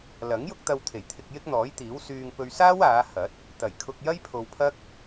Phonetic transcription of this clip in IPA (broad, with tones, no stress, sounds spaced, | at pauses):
l ɐ˨˥ ŋ j ʊ˥ k̚ t̪ ɐ˧ w t̪ʰ e˨˩ j t̪ʰ ɪ˧ k̚ j ɪ˥ k̚ n̪ ɔː˨˥ j t̪ iː˨˥ w s yː˧ ŋ p ɵ˧ ɥ s aː˥ w aː˨˧ h ɐ˨˥ t̚ | t̪ ɐ˨˩ j kʰ ʊ˧ k̚ j ɐ˥ j pʰ o˧ w pʰ ɐ˥ k̚